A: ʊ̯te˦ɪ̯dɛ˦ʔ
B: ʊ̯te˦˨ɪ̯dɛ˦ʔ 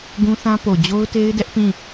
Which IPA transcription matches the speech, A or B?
A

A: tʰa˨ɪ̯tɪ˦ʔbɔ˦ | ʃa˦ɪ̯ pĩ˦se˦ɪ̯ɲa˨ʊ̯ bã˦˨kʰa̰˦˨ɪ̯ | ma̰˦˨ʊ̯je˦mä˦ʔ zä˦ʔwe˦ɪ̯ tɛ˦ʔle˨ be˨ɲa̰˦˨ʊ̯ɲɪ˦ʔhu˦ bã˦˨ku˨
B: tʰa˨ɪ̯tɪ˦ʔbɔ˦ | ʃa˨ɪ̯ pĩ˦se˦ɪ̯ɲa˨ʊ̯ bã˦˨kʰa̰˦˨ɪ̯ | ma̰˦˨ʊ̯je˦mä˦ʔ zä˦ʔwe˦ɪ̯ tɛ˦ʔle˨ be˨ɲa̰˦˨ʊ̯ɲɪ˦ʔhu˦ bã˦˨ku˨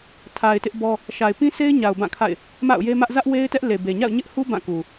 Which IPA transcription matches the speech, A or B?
B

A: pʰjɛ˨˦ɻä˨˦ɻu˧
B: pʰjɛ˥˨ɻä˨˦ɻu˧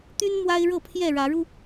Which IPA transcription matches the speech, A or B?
B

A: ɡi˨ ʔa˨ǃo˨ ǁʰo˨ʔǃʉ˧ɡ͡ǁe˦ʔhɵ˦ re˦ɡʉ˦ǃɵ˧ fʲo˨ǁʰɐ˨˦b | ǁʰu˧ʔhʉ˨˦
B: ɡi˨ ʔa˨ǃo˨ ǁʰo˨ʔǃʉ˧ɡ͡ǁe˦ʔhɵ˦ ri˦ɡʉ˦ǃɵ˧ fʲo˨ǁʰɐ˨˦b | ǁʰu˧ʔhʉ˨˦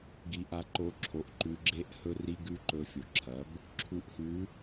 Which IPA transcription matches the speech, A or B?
B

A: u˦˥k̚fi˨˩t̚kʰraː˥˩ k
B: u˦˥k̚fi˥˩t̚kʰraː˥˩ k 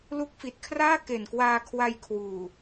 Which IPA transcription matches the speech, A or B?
A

